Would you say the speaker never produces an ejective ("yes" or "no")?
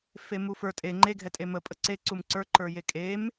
no